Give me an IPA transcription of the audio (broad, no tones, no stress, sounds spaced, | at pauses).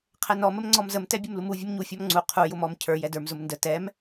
qʰ ɛ n ɔ m ə m ŋ͡ǀ ɔ m z ə m t ɛ bʲ ʊ m l u m u vʲ ə m ɲ u fʲ ɔ m ŋ͡ǀ u qʰ u j ʊ m ɔ m cʰ ə˞ j ɛ d ə˞ m z ʊ m n d ə t ɛ m